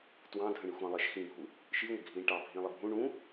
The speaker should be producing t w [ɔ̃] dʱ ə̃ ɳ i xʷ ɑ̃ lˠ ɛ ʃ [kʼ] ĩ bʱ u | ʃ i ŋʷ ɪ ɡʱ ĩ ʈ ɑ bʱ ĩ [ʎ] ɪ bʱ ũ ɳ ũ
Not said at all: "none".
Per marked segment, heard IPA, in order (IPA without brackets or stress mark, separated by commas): ɑ̃, x, lˠ